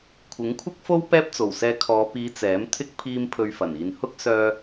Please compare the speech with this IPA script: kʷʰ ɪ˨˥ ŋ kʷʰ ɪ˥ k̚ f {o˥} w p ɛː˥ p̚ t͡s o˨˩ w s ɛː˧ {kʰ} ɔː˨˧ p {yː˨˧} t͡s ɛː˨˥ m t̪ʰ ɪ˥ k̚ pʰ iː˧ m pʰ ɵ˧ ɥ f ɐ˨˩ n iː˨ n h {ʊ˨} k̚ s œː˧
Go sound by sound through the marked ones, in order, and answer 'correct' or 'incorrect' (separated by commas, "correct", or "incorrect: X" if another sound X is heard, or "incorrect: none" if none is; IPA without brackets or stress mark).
correct, correct, incorrect: iː˨˧, incorrect: ʊ˥